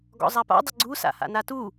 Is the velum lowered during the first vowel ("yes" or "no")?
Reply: no